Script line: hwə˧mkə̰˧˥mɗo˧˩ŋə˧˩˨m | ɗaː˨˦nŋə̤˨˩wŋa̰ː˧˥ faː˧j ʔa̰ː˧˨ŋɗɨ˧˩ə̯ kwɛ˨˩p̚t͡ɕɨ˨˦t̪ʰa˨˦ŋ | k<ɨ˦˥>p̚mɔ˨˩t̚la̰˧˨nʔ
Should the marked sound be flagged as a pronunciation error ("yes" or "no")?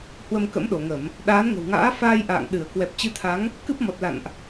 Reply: no